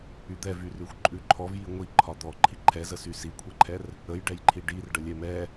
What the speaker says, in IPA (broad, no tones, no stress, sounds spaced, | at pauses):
y d̪ ɛ v y r ʉ xʷ ǃʼ ʉ ǃʰ ɔ v j i ŋʷ i ǃʰ ɒ d̪ ɔ ǃʰ i ǃʰ ɛ z ə s y s i kʷʰ ɛ ǃʰ ɛ r | ə j ɖ ɛ j ǃʰ i ɖ i r ɖ ə lʲ ɛ m ɛ